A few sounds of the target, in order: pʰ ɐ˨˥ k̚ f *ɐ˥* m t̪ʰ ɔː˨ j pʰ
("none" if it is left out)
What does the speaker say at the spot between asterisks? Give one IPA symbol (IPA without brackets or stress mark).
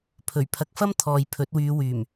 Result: ɐ˥